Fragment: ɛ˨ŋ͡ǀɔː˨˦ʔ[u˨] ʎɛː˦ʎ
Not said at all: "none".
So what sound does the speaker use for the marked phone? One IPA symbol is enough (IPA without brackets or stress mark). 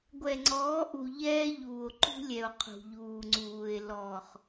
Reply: u˨